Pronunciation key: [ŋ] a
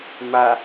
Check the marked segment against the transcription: incorrect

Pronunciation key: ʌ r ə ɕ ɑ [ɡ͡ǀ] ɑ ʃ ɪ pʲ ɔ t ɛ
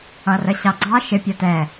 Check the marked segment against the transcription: correct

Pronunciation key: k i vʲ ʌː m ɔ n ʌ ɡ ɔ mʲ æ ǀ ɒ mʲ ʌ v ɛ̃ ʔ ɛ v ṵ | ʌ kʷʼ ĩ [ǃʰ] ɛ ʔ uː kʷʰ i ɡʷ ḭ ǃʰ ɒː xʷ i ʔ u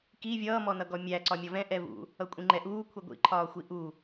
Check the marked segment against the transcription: incorrect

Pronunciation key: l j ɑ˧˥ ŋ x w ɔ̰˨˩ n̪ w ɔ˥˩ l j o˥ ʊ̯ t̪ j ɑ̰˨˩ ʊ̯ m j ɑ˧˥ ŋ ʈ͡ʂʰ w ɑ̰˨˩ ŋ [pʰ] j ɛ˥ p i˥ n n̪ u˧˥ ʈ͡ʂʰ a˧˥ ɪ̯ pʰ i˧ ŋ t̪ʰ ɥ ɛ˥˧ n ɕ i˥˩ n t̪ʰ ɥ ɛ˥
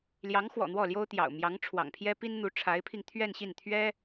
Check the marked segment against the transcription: correct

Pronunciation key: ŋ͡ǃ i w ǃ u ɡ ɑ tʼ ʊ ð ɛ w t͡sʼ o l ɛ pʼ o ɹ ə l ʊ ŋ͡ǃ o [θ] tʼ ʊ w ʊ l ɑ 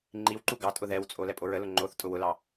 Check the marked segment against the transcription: correct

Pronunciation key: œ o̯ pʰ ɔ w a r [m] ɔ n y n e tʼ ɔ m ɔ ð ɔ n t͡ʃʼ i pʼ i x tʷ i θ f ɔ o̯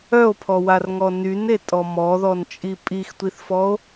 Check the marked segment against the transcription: incorrect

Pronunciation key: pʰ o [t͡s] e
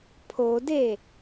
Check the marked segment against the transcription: incorrect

